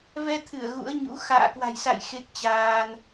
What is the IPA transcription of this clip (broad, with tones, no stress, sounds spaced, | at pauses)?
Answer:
v ɛ˧ t̪ʰ ɨ˧˩ ə̯ ɣ ṵ˧˥ ə̯ ɲ ṵ˧˥ x a̰ː˧˨ k w a̤˨˩ j s a̰˧˨ j x e˦˥ k̚ t͡ɕ aː˧ n